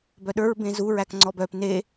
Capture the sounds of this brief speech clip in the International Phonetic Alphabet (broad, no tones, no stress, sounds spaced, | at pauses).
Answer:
b œ ɗ ə˞ ɹ b ẽ z u ɹ æ k ŋ͡ǀ ɔ b œ p n e